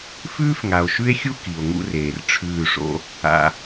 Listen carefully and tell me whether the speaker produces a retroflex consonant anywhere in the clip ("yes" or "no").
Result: yes